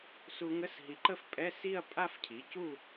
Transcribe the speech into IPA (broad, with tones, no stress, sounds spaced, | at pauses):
s u˧ ŋ ə˧˥˧ s ɦ i˩˥ ǃ ə˥˧ f pʼ ɛ˧˥˧ s i˥˧ ɐ̯ pʼ a˥˧ f cʰ i˩˥ c u˥˧